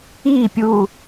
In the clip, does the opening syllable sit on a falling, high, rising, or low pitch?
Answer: falling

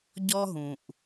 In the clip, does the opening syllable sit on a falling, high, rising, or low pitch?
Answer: high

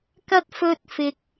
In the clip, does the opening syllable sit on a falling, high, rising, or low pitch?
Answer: low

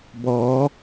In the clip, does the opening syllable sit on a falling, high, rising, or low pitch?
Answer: rising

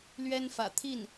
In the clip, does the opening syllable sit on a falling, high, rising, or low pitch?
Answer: high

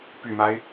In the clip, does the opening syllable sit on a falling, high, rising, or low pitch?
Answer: low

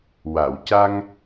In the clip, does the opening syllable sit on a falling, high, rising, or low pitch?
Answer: low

